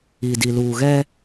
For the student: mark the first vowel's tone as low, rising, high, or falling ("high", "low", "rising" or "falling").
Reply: low